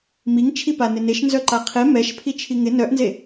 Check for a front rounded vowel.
present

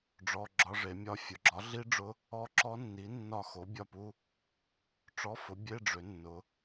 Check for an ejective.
absent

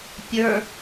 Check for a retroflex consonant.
absent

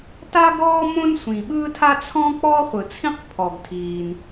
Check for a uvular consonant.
present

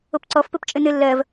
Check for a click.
present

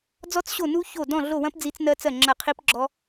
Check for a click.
present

